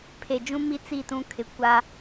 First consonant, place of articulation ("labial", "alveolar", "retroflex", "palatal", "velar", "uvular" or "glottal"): labial